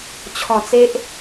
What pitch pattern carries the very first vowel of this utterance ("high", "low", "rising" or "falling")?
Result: low